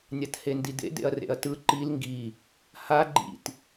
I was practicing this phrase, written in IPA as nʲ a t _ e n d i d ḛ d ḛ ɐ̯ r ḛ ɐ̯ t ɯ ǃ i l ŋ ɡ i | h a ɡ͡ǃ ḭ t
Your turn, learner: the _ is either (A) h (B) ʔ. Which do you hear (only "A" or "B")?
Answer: A